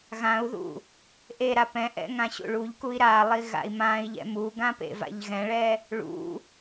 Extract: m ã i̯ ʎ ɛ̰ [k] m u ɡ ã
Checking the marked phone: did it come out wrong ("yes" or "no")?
yes